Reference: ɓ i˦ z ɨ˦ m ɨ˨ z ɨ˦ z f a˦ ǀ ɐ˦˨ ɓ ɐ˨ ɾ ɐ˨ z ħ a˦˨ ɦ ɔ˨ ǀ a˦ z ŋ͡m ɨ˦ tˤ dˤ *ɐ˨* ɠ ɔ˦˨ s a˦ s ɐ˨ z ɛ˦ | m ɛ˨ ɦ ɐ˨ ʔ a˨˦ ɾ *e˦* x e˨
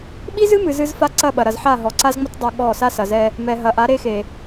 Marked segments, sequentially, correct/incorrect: incorrect, correct

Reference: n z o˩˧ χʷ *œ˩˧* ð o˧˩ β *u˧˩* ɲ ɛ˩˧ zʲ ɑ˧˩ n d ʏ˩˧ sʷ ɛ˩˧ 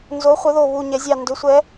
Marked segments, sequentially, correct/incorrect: correct, correct

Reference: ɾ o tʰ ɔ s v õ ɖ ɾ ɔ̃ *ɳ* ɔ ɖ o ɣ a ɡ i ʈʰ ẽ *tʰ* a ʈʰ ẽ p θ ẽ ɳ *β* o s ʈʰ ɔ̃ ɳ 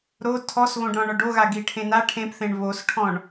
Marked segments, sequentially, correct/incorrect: correct, incorrect, correct

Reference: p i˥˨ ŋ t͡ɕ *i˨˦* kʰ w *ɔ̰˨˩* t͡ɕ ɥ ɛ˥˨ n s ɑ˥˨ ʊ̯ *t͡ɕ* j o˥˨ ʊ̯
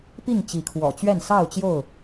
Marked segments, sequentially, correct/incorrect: correct, correct, correct

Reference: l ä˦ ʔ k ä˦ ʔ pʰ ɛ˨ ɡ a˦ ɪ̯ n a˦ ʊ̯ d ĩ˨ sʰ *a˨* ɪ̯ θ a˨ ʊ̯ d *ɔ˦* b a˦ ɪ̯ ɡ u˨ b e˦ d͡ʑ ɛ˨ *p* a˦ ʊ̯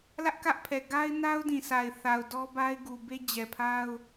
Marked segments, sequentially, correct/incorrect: correct, correct, incorrect

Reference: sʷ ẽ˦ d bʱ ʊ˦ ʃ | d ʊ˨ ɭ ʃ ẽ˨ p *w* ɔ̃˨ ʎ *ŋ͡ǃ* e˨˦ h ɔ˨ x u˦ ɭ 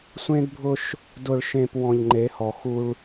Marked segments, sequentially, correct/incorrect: correct, correct

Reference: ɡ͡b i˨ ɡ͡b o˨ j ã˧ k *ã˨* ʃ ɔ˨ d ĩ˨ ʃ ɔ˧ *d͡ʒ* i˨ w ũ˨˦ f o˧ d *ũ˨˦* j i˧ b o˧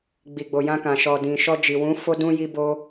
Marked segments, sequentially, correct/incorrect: correct, correct, incorrect

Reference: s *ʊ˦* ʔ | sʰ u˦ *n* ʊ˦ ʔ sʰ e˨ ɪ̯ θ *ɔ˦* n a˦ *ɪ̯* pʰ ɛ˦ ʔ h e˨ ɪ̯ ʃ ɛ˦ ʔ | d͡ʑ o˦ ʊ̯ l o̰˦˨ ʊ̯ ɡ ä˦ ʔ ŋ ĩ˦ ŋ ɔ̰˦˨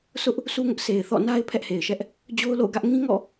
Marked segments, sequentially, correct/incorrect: correct, incorrect, incorrect, correct

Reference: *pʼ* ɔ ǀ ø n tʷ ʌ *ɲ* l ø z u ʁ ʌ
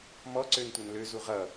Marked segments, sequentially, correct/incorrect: incorrect, incorrect

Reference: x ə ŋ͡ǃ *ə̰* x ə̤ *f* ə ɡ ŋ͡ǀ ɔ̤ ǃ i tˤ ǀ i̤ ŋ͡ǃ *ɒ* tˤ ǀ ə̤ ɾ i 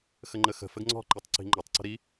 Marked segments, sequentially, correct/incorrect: incorrect, correct, correct

